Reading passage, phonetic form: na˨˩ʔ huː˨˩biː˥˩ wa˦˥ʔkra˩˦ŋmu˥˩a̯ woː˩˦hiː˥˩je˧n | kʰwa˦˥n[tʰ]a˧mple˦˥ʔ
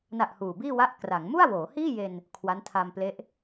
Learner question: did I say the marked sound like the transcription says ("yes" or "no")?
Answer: yes